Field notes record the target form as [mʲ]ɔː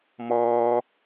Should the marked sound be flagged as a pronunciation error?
yes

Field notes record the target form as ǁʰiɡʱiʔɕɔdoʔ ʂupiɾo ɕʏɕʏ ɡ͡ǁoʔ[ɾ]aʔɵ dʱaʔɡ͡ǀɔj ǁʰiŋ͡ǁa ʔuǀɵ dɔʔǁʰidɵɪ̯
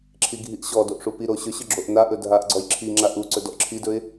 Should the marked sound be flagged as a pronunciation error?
yes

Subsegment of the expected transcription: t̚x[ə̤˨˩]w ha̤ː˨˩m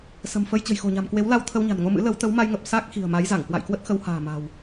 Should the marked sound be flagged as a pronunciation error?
yes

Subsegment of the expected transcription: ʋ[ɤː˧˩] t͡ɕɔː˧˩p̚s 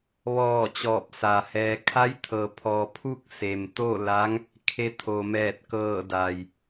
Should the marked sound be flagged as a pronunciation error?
yes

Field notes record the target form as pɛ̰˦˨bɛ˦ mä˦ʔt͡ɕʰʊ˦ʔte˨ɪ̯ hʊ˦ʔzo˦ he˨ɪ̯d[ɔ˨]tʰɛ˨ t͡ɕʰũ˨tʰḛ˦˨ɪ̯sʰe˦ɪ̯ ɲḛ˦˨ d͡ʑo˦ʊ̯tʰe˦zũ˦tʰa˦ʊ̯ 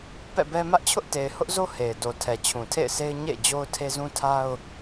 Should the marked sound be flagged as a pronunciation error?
yes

